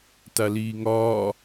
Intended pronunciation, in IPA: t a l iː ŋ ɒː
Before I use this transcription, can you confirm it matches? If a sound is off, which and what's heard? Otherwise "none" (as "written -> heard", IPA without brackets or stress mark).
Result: none